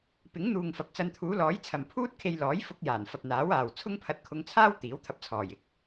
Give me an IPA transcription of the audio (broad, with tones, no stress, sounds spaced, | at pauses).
p ɪ˨˥ ŋ n̪ uː˨ ŋ f ɐ˨˥ p̚ t͡s ɐ˧ n t̪ʰ uː˨˥ l ɔː˨˥ j t͡sʰ ɐ˨ m pʰ uː˥ t̚ kʰ e˧ j l ɔː˨˥ j f ʊ˧ k̚ j aː˨˩ n f ɐ˨ p̚ n̪ aː˨˥ w aː˨ w t͡sʰ ʊ˥ ŋ pʰ ɐ˧ t̚ kʰ ʊ˧ ŋ t͡sʰ aː˥ w t̪ iː˨˥ w t̪ʰ ɐ˧ p̚ t͡sʰ ɔː˨˩ j ɪ˥ k̚